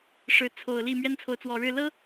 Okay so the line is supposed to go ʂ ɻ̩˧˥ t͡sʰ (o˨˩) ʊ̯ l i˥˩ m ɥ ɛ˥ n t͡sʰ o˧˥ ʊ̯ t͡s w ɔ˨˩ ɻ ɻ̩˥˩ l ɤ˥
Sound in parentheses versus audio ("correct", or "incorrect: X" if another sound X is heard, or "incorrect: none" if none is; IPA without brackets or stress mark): correct